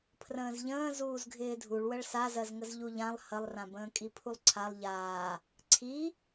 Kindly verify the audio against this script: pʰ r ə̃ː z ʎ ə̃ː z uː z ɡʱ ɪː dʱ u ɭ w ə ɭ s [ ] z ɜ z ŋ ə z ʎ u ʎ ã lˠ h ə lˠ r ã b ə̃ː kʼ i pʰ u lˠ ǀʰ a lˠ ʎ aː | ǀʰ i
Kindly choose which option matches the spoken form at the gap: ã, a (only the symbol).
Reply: a